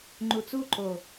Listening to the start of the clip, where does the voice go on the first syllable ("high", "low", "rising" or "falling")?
low